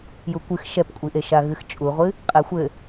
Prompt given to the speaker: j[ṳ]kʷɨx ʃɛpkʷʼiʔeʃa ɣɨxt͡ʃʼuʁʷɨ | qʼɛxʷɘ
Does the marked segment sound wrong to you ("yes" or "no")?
yes